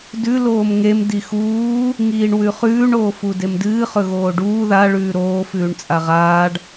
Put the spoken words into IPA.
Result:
d ʉ l oː m ŋ e m d i x uː | ŋ iː ɳ w ʉ χ ʉː ɳ oː f u d e m d ɨː χ ɵ ɣ oː ɖ uː ð a ɭ ʉː ɾ oː f ʉː ɳ t͡sʼ a ʁ aː ɖ

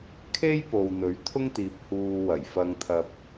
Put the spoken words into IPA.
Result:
kʰ e˥ j p o˨ w n̪ ɵ˨˥ ɥ t̪ʰ ʊ˥ ŋ t̪ iː˨ p̚ h uː˧ w ɐ˨˩ j f ɐ˧ ŋ t̪ʰ ɐ˨ p̚

